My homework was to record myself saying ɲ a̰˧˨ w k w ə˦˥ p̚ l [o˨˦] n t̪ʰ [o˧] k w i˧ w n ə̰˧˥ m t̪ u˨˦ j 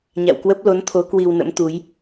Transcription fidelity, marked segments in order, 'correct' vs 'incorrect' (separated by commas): correct, incorrect